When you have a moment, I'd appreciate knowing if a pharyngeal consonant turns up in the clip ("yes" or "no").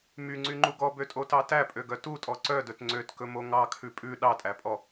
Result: no